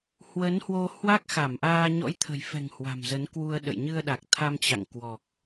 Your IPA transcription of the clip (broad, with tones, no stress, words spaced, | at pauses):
hwə˨˦nhwo˧ hwa˦˥k̚xa˧˩mʔaː˧ ɲɔ̰˧˥jt̪ʰə̤˨˩jfɛ̤˨˩ŋ hwa̤˨˩mzə˨˦nkwu˧ə̯ɗə̰˧˨j ɲɨ˧ə̯ɗa˨˩k̚ t̪ʰa˧mt͡ɕa̰˧˨ŋkwɔ˨˩k̚